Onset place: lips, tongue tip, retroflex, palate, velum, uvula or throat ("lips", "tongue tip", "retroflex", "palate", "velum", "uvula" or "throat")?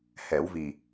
throat